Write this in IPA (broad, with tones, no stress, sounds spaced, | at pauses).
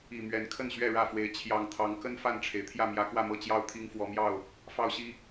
i˨˩ m ɥ ɛ˨˦ n kʰ ə˥˨ n ɕ ɥ ɛ˥˨ ɻ ä˥˨ f w e˨˦ ɪ̯ t͡ɕʰ j ɑ˨˩ ŋ t̪ʰ ɑ˨˦ ŋ k ə˦ n f a˥˨ n ʈ͡ʂʰ e˩ ɪ̯ t̪ʰ j ä˥˨ m j ä˨˦ k w ä˥˨ m ɤ˥˨ t͡ɕ j ɑ˥˨ ʊ̯ t̪ʰ i˦ ŋ f w ɔ˨˦ m j ɑ˥˨ ʊ̯ | f ɑ˦ ʊ̯ ɕ i˦